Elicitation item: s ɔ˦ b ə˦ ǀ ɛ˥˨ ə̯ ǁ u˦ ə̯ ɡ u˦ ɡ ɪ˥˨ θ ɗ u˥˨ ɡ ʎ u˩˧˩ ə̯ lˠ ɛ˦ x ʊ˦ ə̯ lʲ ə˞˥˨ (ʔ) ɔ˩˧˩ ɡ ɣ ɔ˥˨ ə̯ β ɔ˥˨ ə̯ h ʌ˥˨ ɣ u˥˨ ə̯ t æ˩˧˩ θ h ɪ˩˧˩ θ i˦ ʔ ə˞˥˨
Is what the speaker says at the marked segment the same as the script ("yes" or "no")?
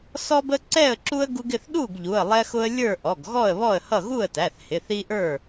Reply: yes